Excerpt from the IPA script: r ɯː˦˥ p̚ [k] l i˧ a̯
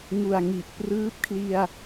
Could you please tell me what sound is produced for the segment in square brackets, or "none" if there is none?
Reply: kʰ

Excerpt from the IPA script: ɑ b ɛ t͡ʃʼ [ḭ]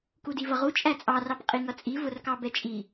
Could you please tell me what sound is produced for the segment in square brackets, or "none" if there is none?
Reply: i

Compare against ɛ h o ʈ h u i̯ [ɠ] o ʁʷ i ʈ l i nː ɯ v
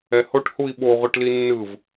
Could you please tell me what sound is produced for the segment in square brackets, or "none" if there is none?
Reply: ɓ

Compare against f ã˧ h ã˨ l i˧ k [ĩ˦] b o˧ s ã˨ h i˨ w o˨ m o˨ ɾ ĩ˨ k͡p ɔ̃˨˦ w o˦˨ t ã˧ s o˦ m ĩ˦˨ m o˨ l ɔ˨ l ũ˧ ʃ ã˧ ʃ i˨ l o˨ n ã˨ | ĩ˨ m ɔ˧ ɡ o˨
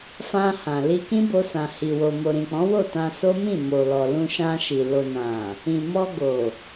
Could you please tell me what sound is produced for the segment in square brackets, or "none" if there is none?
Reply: ĩ˦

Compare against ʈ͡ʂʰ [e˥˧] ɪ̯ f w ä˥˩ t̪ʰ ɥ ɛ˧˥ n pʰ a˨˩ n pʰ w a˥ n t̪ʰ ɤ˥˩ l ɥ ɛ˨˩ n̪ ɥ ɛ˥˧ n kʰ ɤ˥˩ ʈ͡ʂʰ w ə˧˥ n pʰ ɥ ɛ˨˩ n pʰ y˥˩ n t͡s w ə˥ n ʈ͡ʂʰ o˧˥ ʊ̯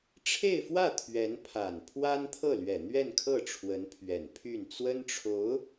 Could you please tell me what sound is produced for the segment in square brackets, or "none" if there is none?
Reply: e˥˧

